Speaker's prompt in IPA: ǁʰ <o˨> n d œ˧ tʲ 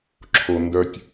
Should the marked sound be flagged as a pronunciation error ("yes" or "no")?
no